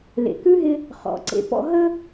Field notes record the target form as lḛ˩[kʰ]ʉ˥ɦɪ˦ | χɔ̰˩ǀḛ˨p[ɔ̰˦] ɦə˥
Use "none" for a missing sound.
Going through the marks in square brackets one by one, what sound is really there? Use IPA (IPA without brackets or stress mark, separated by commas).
k, ɔ̰˦